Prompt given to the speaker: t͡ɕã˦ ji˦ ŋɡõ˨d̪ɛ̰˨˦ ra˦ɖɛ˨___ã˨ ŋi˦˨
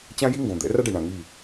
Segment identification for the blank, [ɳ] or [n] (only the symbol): ɳ